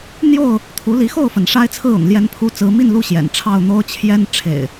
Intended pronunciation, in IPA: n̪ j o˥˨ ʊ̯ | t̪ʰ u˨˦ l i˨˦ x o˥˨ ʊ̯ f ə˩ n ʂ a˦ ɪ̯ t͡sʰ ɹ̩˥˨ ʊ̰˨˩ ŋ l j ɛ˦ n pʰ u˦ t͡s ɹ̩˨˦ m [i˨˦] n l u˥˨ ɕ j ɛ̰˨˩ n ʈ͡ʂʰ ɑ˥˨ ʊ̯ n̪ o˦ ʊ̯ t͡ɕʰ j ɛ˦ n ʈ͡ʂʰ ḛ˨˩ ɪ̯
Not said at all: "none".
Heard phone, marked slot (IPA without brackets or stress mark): i˥˨